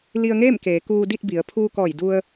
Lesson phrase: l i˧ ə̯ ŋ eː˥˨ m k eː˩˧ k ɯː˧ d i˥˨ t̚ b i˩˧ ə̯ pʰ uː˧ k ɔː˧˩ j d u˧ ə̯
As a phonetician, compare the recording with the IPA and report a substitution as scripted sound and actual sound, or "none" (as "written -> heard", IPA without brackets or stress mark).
ɯː˧ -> uː˧